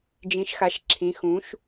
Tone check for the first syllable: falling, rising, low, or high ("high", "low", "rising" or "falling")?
rising